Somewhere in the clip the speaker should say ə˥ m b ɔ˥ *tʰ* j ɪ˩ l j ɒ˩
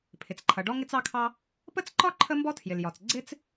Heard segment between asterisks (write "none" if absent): tʰ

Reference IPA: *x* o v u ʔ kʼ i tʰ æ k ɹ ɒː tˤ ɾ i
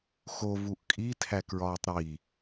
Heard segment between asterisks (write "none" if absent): x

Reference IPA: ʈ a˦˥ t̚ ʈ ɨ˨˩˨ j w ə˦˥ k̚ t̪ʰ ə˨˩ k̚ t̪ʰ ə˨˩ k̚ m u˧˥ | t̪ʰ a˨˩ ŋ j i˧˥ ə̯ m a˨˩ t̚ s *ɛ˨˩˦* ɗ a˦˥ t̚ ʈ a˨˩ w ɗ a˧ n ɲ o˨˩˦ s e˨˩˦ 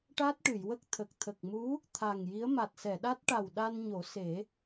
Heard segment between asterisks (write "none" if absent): ɛ˨˩˨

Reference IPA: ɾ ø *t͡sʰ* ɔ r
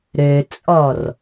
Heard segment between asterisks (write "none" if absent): t͡sʼ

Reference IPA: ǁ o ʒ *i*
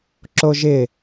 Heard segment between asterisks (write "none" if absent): ɪ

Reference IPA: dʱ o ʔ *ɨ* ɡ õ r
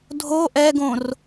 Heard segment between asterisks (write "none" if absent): ɛ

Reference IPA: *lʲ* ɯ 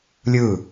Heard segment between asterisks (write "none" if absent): lʲ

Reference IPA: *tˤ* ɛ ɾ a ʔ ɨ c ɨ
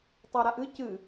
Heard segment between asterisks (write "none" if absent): tˤ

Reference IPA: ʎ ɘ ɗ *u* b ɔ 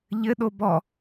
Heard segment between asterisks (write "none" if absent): o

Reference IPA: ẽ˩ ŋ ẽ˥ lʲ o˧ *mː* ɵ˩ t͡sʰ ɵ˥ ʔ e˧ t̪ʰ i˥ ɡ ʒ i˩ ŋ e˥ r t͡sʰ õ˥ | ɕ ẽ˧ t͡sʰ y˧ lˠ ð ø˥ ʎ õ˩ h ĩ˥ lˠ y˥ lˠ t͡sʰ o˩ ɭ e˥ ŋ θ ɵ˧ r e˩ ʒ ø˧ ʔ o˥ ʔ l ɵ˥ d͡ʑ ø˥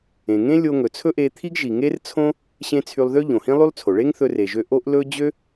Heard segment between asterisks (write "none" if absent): ŋ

